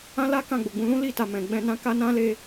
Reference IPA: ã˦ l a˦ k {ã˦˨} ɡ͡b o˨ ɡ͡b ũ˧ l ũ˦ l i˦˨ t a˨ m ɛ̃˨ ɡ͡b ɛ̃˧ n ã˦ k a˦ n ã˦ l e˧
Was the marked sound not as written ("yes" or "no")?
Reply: no